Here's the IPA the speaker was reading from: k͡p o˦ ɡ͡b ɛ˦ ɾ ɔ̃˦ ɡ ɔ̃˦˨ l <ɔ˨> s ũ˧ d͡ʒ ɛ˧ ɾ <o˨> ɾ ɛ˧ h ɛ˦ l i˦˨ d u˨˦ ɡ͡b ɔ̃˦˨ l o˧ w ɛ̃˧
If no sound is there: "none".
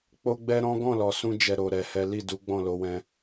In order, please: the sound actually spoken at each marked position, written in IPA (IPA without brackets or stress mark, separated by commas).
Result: ɔ˨, o˨